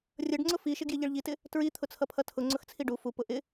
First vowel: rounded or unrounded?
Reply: unrounded